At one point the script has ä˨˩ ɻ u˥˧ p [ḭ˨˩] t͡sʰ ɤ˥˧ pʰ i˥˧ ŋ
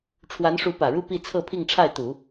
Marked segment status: incorrect: i˥˧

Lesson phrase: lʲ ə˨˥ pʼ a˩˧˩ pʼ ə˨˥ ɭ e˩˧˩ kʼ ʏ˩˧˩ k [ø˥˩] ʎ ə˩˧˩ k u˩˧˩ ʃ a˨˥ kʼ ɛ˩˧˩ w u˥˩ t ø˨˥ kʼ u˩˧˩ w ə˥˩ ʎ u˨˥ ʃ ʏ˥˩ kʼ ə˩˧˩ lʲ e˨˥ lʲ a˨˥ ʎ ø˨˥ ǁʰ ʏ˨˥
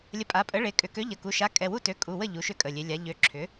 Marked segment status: incorrect: ø˨˥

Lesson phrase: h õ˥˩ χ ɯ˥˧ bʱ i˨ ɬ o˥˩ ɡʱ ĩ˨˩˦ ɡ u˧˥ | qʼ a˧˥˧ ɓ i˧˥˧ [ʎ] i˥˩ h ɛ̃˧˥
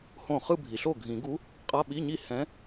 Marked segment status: incorrect: ɲ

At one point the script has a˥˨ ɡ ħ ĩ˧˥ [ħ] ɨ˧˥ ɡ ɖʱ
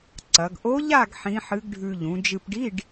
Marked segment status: correct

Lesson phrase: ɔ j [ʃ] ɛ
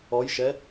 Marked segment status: correct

